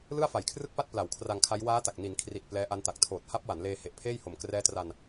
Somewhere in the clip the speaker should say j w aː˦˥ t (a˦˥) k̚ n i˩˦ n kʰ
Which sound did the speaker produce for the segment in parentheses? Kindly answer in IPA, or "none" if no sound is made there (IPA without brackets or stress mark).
a˨˩